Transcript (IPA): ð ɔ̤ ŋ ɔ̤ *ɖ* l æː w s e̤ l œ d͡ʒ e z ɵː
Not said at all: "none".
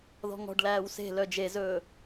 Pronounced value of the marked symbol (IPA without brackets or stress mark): ɖ